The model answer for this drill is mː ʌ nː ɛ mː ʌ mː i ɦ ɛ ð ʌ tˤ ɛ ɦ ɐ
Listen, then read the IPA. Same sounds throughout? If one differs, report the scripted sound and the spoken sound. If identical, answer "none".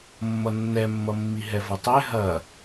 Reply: ð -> v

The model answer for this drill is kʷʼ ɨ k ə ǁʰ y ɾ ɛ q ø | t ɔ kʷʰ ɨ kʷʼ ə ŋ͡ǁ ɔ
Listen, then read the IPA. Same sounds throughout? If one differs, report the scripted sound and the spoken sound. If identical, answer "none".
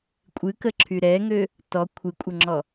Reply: q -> ŋ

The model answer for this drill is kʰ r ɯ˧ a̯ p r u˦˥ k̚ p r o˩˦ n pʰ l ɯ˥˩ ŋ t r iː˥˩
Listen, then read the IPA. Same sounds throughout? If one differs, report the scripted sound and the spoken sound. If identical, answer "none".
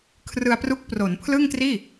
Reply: none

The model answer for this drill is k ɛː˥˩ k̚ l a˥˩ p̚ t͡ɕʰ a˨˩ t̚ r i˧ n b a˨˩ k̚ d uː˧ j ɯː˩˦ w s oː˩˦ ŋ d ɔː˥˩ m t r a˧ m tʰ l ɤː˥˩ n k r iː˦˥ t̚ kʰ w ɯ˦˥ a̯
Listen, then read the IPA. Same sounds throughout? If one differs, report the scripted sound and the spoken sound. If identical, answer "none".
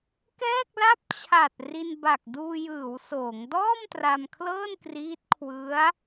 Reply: tʰ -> kʰ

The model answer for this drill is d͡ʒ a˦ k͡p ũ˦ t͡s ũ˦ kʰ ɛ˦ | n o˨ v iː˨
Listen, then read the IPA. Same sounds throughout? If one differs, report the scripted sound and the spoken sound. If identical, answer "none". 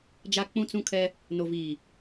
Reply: none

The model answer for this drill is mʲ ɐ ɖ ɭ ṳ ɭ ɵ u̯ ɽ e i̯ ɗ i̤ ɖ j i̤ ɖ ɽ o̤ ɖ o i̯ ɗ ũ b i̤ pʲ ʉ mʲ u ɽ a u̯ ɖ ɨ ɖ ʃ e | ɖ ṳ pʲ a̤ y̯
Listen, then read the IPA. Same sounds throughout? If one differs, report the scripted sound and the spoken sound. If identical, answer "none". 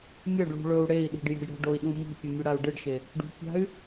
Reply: b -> m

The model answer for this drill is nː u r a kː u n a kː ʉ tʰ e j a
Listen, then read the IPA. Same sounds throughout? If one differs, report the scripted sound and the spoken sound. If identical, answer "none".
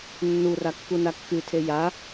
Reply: none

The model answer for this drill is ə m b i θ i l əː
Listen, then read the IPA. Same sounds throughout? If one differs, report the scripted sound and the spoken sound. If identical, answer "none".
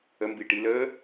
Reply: θ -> ʈ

